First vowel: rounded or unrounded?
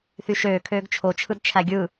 rounded